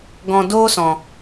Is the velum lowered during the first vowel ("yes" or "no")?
yes